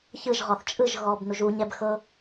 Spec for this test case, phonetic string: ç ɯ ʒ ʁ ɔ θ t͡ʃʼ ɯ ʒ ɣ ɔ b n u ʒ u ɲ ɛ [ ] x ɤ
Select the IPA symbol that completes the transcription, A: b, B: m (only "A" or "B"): A